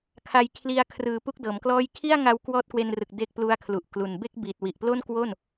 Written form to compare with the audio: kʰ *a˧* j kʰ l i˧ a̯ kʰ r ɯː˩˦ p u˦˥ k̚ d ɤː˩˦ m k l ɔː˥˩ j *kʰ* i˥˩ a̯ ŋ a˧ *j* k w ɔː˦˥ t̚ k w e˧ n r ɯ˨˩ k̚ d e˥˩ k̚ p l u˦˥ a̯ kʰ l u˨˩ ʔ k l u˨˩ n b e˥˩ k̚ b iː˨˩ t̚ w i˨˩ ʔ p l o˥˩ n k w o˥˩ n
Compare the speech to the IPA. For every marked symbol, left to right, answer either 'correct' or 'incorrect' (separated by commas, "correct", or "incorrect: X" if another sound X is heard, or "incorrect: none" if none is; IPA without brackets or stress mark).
correct, correct, incorrect: w